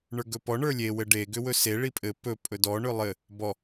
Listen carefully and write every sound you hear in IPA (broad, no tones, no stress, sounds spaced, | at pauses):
ɳ ə˞ ɡ ɵ p ɔ ɳ ə˞ lʲ e w ɘ ɖ e ɡ ʏ w ɵ s e ɭ i pʼ ɘ p ɵ pʼ ɵ d ɔ ɳ ɵ lˠ ɘ | b ɔ